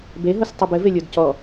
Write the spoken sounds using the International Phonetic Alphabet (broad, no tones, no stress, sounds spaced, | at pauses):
b e ɦ o s tˤ ɨ b ɘ v e lʲ o d c ɔ